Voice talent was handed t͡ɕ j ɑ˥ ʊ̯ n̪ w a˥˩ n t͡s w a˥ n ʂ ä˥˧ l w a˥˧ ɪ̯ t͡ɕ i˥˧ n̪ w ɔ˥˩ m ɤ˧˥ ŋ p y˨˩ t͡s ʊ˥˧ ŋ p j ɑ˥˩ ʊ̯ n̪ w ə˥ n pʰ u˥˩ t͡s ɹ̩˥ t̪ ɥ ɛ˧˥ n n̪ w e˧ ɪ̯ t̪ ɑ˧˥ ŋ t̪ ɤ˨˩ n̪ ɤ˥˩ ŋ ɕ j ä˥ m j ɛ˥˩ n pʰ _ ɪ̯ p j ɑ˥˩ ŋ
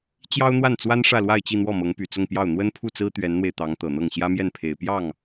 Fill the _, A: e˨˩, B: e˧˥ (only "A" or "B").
A